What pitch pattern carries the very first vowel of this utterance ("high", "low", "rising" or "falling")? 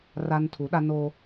high